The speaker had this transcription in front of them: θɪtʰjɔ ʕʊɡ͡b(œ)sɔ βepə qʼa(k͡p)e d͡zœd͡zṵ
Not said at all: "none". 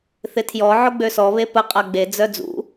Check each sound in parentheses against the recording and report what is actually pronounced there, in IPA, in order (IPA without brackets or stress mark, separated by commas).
ø, ɡ͡b